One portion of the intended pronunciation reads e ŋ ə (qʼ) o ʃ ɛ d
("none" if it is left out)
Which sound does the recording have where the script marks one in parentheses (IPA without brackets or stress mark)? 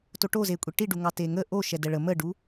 ʔ